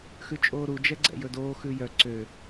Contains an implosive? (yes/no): no